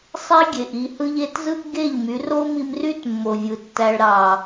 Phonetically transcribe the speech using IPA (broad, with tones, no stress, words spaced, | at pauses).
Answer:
sˤe˦ɡʲe˨ʔ i˧hɯ˦ʎ e˧tzɯ˦ʔɡe˦˨ʎ my˨˦ ro˦mi˧mry˦tmːo˨ vʲɯ˨tːæ˧ɭ ɾɑ˨